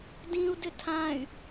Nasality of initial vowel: nasal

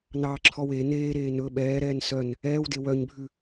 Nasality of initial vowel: oral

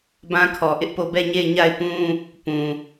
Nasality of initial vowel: nasal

